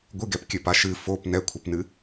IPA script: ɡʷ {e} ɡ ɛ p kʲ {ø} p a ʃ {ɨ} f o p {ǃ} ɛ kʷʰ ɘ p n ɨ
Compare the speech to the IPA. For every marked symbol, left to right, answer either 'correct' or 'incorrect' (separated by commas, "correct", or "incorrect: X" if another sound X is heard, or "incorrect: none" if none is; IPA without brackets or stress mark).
incorrect: ɨ, incorrect: ɘ, correct, incorrect: n